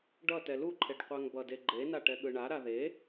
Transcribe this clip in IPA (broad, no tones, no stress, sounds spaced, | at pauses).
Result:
ɖ ʌ t ɛ l u ǃʰ e ɖ qʷ a ŋ b ʌ d e ɡ͡ǃ e n a ʈ ɛ ɠ ɯ ɳ a ɾ a ð e